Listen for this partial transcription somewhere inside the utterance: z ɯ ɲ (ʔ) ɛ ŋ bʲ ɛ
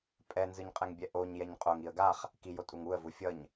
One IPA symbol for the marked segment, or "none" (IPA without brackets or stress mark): qʼ